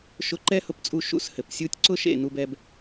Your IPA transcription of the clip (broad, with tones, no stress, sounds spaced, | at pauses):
ʃ ʊ˧ ǃ ɛ˦ h ʊ˧ p t͡sʼ u˧ ʃ ṵ˧ s h ɘ˨ p sʲ u˧ tʲ ǀ ʊ˦ ʃ ḛ˦˨ n u˧ b ɛ˧ b